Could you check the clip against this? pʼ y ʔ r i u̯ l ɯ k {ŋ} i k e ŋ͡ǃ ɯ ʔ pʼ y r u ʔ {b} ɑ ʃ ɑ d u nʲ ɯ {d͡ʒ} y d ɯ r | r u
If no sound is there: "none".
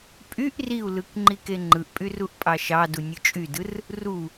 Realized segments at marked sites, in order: ŋ͡ǃ, pʼ, t͡ʃʼ

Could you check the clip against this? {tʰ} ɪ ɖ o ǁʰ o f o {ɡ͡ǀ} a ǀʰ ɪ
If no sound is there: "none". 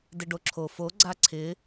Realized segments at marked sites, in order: d, ɡ͡ǀ

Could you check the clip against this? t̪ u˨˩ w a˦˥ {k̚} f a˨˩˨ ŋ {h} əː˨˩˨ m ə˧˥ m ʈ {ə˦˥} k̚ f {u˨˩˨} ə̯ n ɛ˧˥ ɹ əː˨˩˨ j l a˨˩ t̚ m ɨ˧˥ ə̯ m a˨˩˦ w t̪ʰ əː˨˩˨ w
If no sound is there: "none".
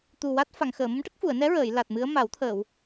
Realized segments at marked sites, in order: t̚, x, ə˦˥, u˨˩˨

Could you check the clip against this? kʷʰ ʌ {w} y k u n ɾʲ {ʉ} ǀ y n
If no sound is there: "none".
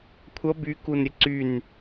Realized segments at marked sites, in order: b, ə

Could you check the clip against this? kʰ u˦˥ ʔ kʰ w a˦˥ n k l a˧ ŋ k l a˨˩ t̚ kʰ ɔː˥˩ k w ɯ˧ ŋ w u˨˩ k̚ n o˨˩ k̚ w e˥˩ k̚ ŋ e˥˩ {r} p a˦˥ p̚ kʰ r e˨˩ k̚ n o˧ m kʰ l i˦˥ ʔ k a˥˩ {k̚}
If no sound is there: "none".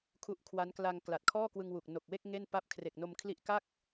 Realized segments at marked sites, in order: n, k̚

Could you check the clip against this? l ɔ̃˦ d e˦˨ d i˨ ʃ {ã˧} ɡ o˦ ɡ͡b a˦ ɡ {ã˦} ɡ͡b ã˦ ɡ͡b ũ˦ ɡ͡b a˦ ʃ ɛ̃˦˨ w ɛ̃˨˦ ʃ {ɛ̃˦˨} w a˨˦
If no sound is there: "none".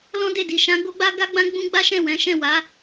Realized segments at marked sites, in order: ã˨˦, a˦, ɛ̃˦˨

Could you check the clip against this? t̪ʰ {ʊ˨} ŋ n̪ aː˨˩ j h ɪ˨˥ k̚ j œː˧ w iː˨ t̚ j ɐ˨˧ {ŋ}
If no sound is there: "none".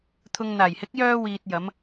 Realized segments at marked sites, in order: ʊ˨, m

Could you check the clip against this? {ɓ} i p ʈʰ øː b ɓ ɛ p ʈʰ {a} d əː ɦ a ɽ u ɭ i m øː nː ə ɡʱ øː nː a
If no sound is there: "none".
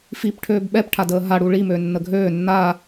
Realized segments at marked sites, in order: f, a

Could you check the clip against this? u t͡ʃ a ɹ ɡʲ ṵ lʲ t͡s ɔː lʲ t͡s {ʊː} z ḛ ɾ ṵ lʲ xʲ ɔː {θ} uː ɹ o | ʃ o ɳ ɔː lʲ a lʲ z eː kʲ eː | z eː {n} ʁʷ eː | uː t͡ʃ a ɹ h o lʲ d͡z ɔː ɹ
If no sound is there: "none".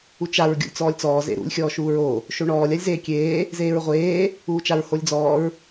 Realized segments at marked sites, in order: ɔː, ʃ, ɹ

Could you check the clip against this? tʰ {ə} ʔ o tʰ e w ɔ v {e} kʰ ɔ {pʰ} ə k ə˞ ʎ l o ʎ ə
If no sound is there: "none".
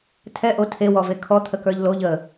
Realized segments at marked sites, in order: ɛ, e, t̪ʰ

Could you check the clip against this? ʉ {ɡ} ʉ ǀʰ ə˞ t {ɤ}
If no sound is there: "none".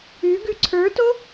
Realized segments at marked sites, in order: ɡ, o

